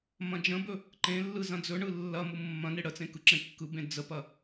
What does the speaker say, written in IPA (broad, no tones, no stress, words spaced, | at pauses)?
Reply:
mɐ̃d͡ʒə̃bɵ | ǃẽlːɯ zɐ̃d͡zɵɳɯ lːɐ mumːɐ̃ne ɽət͡sẽ kɯǁẽkːɯbẽ d͡zəpɐ